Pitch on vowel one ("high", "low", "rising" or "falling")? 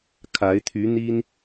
rising